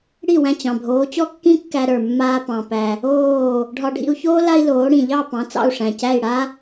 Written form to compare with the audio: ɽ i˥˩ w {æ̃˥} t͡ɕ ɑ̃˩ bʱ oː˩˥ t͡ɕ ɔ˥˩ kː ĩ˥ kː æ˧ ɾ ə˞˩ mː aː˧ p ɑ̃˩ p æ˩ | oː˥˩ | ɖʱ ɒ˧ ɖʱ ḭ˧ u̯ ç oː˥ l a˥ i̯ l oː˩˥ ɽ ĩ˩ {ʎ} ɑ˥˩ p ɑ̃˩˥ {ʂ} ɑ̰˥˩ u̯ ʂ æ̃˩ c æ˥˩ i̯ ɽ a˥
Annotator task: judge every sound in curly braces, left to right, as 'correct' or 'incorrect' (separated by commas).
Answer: incorrect, correct, incorrect